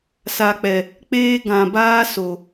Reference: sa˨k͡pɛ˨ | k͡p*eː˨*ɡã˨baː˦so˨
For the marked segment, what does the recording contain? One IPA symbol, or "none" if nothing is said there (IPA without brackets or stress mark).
eː˦